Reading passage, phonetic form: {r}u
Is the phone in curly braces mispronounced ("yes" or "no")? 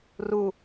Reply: no